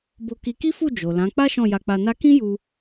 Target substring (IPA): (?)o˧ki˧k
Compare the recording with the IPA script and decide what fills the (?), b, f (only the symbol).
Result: b